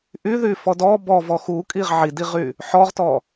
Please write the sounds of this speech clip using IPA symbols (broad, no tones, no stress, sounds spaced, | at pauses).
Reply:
ʔ y ð y f ɔ d ɔ b ɔ v ɔ x u kʼ i ʁ ʕ i d i ʁ y | ħ ɔ ʁ t ɔ